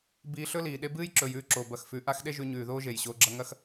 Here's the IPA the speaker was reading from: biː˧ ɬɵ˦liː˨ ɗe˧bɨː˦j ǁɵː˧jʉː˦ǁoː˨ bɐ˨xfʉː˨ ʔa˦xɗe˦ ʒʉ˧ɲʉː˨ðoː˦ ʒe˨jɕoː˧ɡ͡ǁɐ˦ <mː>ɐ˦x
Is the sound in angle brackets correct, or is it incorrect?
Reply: incorrect